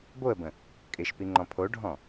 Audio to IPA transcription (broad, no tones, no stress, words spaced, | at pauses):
boə̯bə̃ | kʼɪʃpi ŋ͡ǃɔ̃pʰoɖʱɔ̃